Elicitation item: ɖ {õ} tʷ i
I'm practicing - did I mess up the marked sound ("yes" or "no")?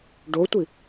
yes